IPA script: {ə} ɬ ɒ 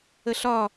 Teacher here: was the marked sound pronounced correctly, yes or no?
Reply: yes